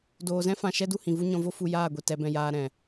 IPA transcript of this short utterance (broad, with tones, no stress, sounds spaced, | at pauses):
d oː˨ z ɛ̃˦ f ã˨ ʃ ɛ˦ d u˧ h ĩ˨ v u˦ ɲ ɔ̃˧ v o˦ f u˧ j aː˦˨ ɡʷ i˨ t ɛ˨˦ b ɛ̃˧ j aː˧ ɾ ɛ̃˨